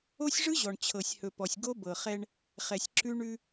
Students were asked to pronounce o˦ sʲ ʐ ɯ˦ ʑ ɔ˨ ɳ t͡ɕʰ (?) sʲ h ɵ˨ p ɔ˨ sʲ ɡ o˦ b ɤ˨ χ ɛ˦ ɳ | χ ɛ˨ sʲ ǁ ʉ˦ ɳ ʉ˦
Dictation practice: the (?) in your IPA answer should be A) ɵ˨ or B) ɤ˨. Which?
B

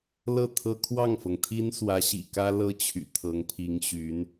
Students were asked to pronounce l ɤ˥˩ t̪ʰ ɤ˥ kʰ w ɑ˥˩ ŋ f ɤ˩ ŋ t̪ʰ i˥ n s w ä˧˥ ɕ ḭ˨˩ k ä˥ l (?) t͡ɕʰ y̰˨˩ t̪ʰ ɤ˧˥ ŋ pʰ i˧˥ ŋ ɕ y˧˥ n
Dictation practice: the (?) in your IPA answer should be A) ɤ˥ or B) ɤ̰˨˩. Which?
A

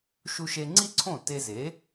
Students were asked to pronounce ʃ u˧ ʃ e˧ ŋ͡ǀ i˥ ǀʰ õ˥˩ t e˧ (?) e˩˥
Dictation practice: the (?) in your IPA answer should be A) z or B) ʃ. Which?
A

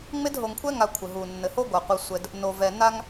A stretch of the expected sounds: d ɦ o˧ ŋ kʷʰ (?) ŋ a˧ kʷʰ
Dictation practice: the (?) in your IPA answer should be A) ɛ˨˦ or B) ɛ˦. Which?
B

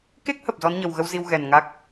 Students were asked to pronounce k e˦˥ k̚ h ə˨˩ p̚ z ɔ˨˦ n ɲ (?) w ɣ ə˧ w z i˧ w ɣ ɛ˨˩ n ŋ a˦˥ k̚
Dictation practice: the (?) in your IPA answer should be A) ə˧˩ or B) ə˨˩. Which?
B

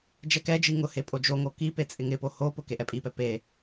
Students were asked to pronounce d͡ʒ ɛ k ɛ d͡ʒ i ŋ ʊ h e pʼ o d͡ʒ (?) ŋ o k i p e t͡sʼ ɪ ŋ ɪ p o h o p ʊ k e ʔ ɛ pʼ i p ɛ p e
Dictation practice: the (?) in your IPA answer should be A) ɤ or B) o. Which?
B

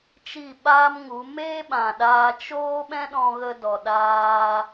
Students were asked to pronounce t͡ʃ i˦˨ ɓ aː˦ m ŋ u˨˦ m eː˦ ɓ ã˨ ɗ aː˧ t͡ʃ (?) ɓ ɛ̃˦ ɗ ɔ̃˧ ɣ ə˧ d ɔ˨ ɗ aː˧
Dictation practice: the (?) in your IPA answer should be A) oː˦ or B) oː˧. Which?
A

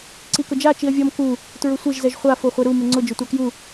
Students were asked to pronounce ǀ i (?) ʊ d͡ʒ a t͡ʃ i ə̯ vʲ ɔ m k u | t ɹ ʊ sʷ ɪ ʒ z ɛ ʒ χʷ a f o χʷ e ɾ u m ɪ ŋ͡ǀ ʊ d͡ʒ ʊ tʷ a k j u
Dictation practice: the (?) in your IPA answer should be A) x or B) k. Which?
B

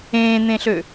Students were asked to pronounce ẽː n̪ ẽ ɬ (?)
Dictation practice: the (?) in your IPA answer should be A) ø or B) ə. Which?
A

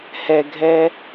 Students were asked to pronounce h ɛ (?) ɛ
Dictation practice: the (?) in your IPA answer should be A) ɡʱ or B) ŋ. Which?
A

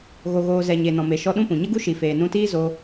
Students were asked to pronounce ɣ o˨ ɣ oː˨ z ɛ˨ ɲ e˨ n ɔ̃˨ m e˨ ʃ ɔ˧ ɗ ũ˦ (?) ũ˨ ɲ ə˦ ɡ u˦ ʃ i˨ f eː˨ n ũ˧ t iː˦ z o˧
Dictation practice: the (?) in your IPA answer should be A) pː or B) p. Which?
B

